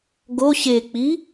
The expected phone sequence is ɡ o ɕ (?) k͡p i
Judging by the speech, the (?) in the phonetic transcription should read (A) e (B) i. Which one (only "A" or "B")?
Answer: A